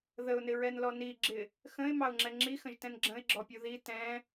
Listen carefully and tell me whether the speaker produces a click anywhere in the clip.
yes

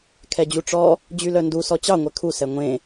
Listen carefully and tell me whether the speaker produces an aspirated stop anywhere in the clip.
yes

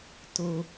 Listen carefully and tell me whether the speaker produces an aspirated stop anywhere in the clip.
no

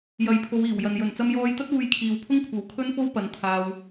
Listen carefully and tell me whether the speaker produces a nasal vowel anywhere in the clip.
no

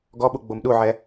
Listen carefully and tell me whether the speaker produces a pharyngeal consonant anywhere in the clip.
yes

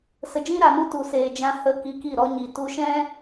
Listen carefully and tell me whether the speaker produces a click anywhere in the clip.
no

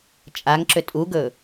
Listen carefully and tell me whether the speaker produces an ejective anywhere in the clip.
yes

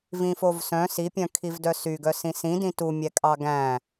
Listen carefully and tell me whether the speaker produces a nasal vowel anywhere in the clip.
yes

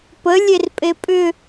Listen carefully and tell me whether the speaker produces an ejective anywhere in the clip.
yes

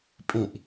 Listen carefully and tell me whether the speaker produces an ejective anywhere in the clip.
yes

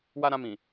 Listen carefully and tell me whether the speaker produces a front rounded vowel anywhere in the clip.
no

